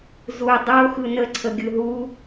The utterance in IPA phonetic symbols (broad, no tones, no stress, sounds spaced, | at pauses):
z u dˤ o x ɯ n ə ǀʰ ə ɡʲ ɯ ɦ u